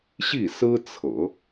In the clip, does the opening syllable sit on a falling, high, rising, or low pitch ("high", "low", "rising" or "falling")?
falling